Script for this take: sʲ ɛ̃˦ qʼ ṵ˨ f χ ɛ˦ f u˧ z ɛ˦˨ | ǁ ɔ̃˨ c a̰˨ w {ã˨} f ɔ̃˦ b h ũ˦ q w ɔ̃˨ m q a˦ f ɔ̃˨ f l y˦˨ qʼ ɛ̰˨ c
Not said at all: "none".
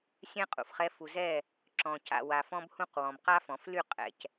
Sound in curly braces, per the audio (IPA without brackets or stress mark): a˨